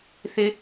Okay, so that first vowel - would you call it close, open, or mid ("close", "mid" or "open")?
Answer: close